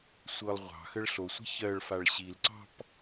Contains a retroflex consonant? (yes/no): yes